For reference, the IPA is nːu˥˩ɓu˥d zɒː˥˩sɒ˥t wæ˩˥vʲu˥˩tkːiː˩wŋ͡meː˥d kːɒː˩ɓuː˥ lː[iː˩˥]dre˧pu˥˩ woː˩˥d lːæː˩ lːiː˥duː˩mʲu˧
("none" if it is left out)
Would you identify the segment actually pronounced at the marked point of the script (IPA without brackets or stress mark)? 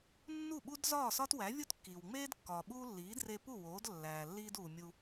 iː˩˥